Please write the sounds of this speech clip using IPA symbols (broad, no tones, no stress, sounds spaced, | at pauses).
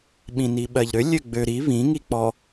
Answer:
ɓ ĩ n i ɓ ɜ ʎ ɾ ø lʲ ø ɡ͡b ø ɾ i β ĩ ŋ i k͡p ɔ